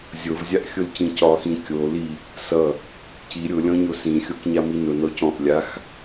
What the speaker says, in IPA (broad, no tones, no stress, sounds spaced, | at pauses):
zʲ o v zʲ a ʔ xʲ ʊ l c ĩ c ɒ x ĩ kʲ o l i | s ʌ | c i ɾʲ ʊ lʲ ɔ̃ ɲ o s ĩ xʲ o k ɲ a m i n ʊ n ɔ c ɔ̃ ʔ lʲ a x